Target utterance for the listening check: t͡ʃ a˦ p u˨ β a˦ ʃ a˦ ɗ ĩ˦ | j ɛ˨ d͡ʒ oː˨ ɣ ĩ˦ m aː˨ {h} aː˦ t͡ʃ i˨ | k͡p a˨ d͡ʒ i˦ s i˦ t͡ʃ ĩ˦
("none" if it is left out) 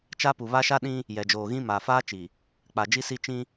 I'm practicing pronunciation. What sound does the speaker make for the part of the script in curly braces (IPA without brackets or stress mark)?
f